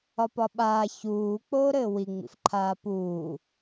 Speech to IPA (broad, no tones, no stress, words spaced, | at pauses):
ɒpɒɓaː çuː k͡poːɾɘːwiŋ͡mḭf ǃʰaːpuː